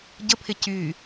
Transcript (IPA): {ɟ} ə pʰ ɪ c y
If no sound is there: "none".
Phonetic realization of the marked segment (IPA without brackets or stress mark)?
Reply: ɟ